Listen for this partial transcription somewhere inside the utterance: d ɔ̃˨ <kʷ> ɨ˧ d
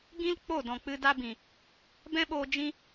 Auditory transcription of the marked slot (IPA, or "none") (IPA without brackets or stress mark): k͡p